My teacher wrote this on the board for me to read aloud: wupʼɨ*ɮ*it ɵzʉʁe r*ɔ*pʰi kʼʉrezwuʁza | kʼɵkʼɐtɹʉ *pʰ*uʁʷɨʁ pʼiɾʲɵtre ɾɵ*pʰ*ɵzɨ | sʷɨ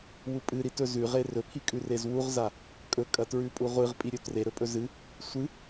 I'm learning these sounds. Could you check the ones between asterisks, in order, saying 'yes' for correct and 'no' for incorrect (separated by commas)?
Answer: no, no, no, no